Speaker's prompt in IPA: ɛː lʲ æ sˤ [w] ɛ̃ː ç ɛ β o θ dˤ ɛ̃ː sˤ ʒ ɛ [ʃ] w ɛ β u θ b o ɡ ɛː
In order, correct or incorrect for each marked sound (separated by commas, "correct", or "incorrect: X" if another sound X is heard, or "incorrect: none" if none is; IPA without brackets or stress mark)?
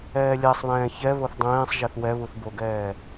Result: incorrect: β, incorrect: θ